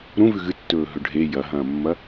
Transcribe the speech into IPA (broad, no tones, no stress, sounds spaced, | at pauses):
ɾ ũ v ʉ ɣ ɨ tː ɵː ɦ ɵ ɖʱ e j ɐ ɦ ɐ̃ː mː ɐ